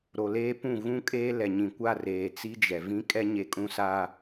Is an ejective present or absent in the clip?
present